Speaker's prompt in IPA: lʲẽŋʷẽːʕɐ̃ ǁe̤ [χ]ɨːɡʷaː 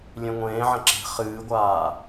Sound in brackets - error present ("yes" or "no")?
no